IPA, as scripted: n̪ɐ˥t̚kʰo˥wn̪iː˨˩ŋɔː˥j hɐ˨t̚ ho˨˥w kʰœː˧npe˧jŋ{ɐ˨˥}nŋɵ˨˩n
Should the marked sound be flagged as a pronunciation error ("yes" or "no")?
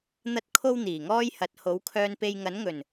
no